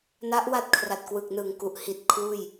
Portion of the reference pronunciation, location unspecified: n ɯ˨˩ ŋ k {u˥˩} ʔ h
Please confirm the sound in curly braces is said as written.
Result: no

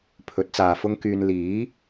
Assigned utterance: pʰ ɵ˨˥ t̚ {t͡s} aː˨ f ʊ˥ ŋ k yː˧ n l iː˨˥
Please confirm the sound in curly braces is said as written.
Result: yes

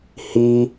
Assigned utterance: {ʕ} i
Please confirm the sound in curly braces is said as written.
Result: no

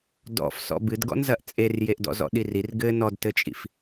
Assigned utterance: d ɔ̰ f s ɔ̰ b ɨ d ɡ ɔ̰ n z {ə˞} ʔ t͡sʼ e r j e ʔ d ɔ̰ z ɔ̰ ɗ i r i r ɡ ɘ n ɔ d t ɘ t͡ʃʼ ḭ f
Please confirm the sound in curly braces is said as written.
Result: no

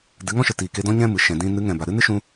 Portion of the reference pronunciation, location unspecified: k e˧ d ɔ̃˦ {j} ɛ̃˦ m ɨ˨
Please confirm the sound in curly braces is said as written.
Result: no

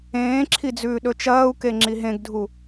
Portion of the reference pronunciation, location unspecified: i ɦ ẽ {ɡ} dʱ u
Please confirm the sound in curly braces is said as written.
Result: yes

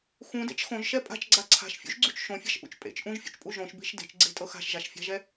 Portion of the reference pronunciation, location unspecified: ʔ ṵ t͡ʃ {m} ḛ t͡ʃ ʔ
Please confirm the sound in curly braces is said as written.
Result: no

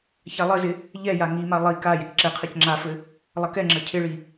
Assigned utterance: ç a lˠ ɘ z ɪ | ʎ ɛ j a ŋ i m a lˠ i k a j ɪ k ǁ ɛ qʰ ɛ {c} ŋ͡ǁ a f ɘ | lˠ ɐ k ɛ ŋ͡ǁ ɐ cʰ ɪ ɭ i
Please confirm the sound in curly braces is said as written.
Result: yes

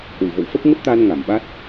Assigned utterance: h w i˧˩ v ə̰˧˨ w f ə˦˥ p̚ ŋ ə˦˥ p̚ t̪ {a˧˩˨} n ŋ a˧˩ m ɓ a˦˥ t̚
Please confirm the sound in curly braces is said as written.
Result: no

